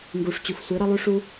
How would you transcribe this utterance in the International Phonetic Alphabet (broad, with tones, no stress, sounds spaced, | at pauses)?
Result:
ŋ ɡ u˨ ʂ t͡ɕ u˨ x sʷ i˨˦ ɾ ɐ˧ lˠ ʉ˦ ʂ u˦